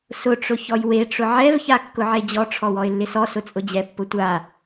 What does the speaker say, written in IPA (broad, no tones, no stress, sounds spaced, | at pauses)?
s ʊ ʈ͡ʂ ʊ ç ɔ j w e ʈ͡ʂ ʊ ʕ ɛ v ç a kː ʊ ʕ e d͡ʑ ɔ ʈ͡ʂʰ ɔ w ɔ ɪ̯ lː ɪ s ɔ s ʊ t͡sʼ ʊ d͡ʑ ɛ pː ʊ tʷ a